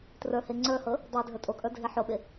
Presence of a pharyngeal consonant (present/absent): present